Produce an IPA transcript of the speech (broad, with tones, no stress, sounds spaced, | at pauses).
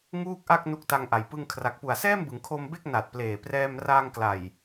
ŋ uː˥˩ k̚ ʔ a˥˩ k̚ n u˦˥ k̚ t a˧ ŋ ʔ a˩˦ j p ɯ˧ ŋ kʰ r a˨˩ k̚ p u˨˩ a̯ s ɛː˥˩ m b ɯ˩˦ ŋ kʰ o˧ m b e˥˩ k̚ n a˨˩ t̚ p l eː˨˩ p r ɛː˧ m r aː˧ ŋ k l a˨˩ j